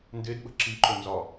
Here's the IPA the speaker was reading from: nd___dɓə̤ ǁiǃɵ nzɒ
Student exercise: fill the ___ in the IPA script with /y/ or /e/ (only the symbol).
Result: e